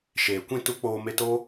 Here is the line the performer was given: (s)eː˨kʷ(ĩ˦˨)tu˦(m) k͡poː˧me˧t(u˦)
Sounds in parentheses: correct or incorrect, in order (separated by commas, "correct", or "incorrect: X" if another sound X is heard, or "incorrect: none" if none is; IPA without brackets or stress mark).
incorrect: ʃ, correct, incorrect: none, incorrect: o˦